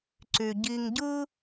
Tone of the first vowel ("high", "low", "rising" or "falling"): low